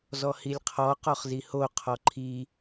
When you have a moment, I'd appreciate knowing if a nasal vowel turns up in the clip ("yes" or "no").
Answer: no